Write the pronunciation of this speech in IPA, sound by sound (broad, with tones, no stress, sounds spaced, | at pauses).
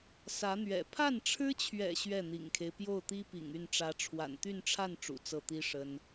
s ä˧˥ n̪ ɥ ɛ̰˨˩ pʰ a˥˩ n ʈ͡ʂʰ ɻ̩˥ t͡ɕʰ ɥ ɛ̰˨˩ ɕ ɥ ɛ˥˩ n̪ ḭ˨˩ ŋ kʰ e˦ ɪ̯ p j o˥˩ ʊ̯ t̪ i˥ p ḭ˨˩ ŋ y˥˩ n ʈ͡ʂ ä˧˥ ʈ͡ʂʰ w a̰˨˩ n t̪ y˥˧ n ʈ͡ʂʰ a˥˩ n ʈ͡ʂ ṵ˨˩ t͡s ɤ˥˩ t̪ i˥ ʂ ə˥ n